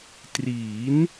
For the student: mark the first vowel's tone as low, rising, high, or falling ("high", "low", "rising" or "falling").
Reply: rising